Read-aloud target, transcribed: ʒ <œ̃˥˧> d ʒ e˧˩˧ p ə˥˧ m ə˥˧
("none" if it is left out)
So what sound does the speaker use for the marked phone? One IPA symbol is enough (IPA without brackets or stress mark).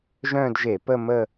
œ̃˥˧